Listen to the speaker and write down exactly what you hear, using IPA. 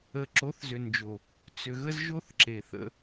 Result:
ə˨ ǁ o˨˦ θ z ʏ˨ n d͡ʒ o˨ | t͡s ʏ˨ ɣ ə˦ z ʒ o˦ θ ǁ e˨ θ ə̰˦

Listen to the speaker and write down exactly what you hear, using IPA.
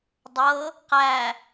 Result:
dˤ ɤ | q æ

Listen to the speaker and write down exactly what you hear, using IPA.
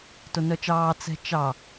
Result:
t o n œ t͡ʃ ɑː t͡s ɛ̤ t͡ʃ ɑ

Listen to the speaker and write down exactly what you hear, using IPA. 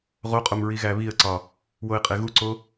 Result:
ʁ o qʼ o m ɹ i ɣ æ β i ə̯ ǀ ɒ | w o ɪ̯ qʼ e ɣ u ǀ o

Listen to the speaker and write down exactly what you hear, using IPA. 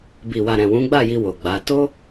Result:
b i˨ w a˨ ɾ ɛ̃˨ w ũ˨˦ ɡ͡b a˦˨ j i˧ w o˨ ɡ͡b a˨˦ t o˦

